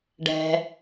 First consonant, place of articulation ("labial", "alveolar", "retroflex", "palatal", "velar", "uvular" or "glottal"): retroflex